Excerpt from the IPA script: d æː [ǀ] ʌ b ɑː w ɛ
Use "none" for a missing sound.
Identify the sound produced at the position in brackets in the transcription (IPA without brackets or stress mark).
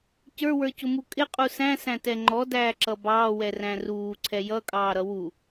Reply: ǁ